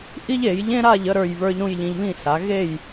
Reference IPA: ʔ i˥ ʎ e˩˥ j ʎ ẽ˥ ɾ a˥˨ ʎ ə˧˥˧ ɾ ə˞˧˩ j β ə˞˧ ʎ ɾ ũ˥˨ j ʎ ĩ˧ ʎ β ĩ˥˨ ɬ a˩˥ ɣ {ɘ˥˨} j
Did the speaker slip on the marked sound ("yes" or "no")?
yes